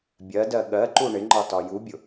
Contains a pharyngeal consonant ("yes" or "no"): no